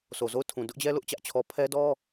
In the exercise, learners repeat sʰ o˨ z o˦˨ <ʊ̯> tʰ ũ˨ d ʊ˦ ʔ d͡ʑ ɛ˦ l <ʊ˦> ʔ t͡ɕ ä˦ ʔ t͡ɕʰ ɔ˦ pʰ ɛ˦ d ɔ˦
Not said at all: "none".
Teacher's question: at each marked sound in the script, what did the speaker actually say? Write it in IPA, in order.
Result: ʊ̯, ʊ˦

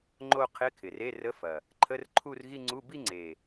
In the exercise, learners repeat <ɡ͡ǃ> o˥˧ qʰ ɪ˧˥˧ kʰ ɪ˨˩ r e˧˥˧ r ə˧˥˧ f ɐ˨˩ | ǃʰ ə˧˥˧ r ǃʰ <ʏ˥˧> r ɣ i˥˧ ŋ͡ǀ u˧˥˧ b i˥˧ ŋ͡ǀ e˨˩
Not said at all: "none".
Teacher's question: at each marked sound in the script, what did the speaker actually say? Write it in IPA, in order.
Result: ŋ͡ǃ, u˥˧

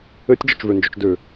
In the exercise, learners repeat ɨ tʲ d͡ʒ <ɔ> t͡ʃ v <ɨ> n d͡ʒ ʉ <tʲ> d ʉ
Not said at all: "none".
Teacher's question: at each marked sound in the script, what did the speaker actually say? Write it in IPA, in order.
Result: ɔ, ʉ, t͡ʃ

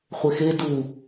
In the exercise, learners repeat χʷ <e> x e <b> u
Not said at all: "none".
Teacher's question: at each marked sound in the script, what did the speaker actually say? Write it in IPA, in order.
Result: e, d

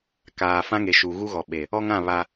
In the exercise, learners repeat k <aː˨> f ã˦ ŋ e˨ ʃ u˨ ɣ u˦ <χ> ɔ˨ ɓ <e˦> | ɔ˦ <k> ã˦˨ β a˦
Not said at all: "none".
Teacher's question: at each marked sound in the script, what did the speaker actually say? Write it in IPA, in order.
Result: aː˨, ɣ, e˨, ŋ

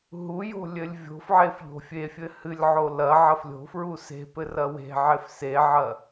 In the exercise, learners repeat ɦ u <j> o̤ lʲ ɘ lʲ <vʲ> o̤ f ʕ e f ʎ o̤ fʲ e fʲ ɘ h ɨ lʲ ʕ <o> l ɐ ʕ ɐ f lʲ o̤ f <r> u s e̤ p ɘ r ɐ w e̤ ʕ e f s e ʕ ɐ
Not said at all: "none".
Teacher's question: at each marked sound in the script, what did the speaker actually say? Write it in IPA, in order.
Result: j, vʲ, o, ɹ

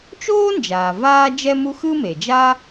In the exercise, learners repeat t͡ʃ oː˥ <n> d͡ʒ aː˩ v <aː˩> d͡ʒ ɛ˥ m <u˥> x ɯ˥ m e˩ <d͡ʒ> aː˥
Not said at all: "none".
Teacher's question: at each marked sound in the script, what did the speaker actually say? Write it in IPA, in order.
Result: n, aː˥, u˥, d͡ʒ

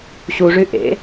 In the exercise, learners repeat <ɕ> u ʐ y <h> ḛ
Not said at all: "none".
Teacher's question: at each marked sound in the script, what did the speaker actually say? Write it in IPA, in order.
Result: ɕ, ʔ

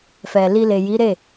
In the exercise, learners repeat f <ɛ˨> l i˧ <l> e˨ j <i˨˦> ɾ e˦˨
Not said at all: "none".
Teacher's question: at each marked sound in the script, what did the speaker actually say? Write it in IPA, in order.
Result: ɛ˨, l, i˨˦

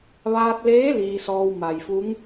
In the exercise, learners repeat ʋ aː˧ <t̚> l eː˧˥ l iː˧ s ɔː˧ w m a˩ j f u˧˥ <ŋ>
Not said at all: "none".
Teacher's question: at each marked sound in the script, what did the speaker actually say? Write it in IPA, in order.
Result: t̚, ŋ

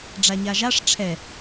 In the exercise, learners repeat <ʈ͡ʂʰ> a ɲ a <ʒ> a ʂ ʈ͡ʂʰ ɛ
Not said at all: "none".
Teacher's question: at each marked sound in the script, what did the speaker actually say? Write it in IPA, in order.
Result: ɖ͡ʐ, ʒ

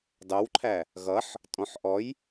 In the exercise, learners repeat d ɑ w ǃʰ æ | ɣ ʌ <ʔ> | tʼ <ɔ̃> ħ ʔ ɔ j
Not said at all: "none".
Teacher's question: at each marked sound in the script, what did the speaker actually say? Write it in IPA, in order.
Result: ħ, ɔ̃

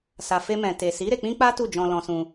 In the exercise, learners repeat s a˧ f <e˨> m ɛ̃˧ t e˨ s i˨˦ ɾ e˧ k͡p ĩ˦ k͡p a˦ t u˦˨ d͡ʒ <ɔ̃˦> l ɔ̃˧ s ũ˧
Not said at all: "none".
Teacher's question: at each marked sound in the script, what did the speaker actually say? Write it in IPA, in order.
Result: e˦, ɔ̃˧

